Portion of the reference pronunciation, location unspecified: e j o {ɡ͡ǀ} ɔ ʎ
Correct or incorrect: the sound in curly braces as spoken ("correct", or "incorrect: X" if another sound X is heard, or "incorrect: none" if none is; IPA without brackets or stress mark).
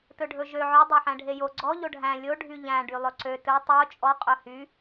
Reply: correct